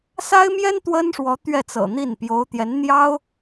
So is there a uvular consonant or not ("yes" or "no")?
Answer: no